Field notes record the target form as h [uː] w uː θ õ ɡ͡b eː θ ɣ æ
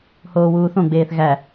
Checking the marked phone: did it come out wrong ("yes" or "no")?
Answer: yes